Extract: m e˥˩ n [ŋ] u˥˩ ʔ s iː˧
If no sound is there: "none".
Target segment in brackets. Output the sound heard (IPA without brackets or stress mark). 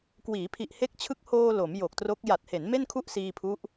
kʰ